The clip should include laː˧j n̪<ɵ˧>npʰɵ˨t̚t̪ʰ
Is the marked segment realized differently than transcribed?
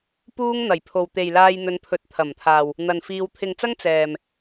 yes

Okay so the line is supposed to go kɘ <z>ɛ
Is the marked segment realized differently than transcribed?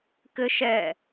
yes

